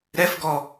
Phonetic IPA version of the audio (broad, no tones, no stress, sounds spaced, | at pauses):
ɾ ɛ f ɡ ɔ